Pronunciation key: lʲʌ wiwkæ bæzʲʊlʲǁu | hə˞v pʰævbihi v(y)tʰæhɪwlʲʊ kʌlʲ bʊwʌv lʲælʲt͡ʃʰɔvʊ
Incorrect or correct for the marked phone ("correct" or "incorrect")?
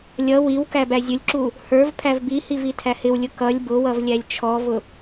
incorrect